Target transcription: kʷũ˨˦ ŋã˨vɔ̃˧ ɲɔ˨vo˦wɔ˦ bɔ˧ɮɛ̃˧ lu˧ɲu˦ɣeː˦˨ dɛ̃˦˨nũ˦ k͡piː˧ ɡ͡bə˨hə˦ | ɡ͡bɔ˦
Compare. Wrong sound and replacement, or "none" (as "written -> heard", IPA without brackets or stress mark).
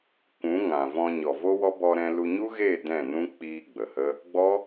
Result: ɮ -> ɾ